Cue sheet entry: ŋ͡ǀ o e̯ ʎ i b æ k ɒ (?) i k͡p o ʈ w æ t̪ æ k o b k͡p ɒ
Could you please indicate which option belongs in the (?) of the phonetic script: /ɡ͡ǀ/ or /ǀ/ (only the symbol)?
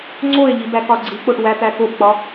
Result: ɡ͡ǀ